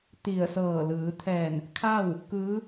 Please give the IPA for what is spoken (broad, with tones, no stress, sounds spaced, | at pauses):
t̪ i˧˩ ə̯ s ɤː˧˩ l ɯː˩˧ t̪ʰ ɛː˧˩ n | kʰ a˥˨ w | k ɯː˧˥